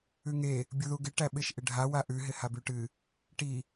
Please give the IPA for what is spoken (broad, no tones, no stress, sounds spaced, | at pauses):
ʉ ŋ e | bʲ u ð u ɡ ɪ ʈ æ ɓ ɪ ʃ ʔ ɪ ɖʱ a w a ʔ ʉ ɦ ɪ h a b ʉ ʈ ɨ | ʈ i